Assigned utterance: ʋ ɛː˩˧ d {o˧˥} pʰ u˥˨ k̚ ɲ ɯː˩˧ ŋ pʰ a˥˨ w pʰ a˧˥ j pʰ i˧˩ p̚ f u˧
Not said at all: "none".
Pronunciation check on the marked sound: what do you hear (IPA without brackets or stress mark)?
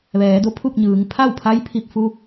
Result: o˧˥